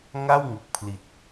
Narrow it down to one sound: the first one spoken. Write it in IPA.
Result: ŋ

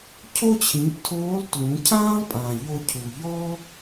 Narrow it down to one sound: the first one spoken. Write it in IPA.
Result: cʰ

